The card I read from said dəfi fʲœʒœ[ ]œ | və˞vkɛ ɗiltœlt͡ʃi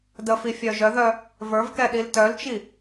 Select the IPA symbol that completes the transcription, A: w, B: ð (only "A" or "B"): B